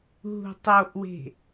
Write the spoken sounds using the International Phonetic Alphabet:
ɦ ṳ tˤ o ʔ w e̤

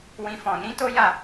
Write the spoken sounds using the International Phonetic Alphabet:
w ĩ˦ f ɔ̃˧ n ĩ˦ t o˦ j a˦˨

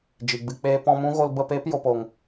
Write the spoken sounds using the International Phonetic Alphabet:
d͡ʒ i˨ ɡ͡b ɨ˧ k͡p eː˦ p ɔ̃˧ m ũ˦ ɣ o˧ l b ə˦˨ p eː˦ p j o˨ p o˨ ŋ

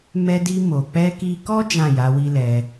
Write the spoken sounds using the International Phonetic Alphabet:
m ɛ˧ d i˧ m o˨ k͡p ɛ˧ k i˧ k ɔ˦ d͡ʒ ã˦˨ j a˨˦ w i˦ l ɛ˧

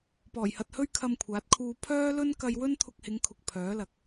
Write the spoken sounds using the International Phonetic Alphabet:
p ɔː˨˩ j h ɐ˨ t̚ h ɵ˥ ɥ kʰ ɐ˧ m kʷʰ aː˨˥ t̚ kʰ uː˧ pʰ œː˥ l ɵ˥ n k ɐ˧ j w ɵ˥ n t̪ʰ ʊ˧ k̚ h ɪ˨˧ ŋ kʰ ʊ˨ k̚ pʰ œː˨˥ l ɐ˧ k̚

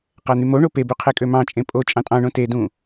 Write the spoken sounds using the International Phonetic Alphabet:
q æ n̪ y m o ɳ o p e b y qʰ e kʼ ø m ɑ̃ t͡ʃʼ ẽ pʼ o t͡ʃʼ ɑ̃ tʼ ɑ̃ ɳ õ t e d ũ

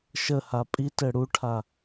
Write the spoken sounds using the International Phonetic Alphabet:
ʃ ə h a pʼ i t ɘ ɽ u ʈʰ a

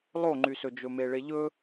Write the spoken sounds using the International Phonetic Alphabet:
lˠ o ŋ͡ǃ y s ɵ d͡ʒ ɵ m e ɭ e ʎ ɵ

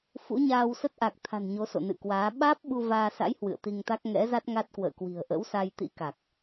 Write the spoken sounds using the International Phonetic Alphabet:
f ṵ˧˥ ɲ aː˧ w s ə˦˥ t̚ ʔ a˨˩ k̚ t̪ʰ a̤˨˩ n ɲ o˨˦ s o̰˧˨ n ɨ̰˧˨ k w aː˨˦ ɓ aː˦˥ p̚ ɓ u˧ v aː˧ s a̰˧˥ j h w ɨ̰˧˨ ə̯ t̪ i˧ ŋ t̪ a˦˥ k̚ ŋ ɛ̰˧˥ z a˦˥ t̚ ŋ a˦˥ t̚ k w ə̰ː˧˨ k w i̤˨˩ ə̯ ʔ ə̰˧˥ w s a˧ j t̪ ḭ˧˥ k a˨˩ k̚

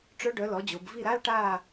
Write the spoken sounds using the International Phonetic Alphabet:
ʈ͡ʂ œ˦˥ ɖ œ˩˥ l ɔ˩˥ d͡ʑ o˩˧ b v i˦˨ ɾ a˧˥˧ l ʈ aː˦˨

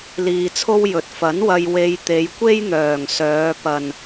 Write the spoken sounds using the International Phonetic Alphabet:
l iː˧ t͡sʰ o˥ w j ɵ˨˥ t̚ f ɐ˨˥ n w ɐ˧ j w e˧ j t̪ e˨˧ j kʷ e˥ j n̪ œː˨˩ ŋ s œː˨˧ p ɐ˨ n

